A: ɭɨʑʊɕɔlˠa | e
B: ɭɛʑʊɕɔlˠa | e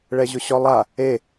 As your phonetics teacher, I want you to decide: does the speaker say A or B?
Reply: B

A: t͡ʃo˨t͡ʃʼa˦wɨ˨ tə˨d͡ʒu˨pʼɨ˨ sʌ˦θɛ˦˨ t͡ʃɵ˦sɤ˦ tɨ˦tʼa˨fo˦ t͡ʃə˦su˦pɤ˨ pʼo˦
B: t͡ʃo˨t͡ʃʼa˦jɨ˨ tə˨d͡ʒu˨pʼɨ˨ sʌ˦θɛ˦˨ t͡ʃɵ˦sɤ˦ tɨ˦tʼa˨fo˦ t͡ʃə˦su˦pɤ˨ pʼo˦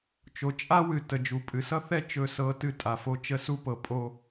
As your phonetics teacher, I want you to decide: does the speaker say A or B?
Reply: A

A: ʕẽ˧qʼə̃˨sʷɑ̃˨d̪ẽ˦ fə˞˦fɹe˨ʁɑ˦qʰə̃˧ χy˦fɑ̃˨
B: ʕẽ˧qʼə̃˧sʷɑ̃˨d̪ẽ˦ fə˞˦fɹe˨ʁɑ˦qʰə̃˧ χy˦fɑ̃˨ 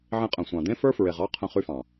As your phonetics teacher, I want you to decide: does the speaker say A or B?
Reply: A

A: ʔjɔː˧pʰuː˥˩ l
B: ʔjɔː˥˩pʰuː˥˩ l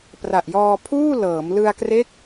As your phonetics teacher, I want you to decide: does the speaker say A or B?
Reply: A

